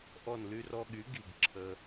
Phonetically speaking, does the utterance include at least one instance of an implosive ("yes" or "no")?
yes